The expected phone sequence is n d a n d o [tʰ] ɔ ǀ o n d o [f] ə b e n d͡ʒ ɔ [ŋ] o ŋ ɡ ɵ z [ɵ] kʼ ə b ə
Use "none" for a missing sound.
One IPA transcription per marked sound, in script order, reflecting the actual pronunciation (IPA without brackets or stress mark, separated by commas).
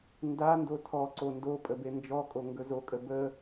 tʰ, pʼ, kʼ, o